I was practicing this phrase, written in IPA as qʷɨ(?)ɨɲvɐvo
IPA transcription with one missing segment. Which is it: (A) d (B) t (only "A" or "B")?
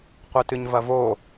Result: B